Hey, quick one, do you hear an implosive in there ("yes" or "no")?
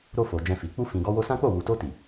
no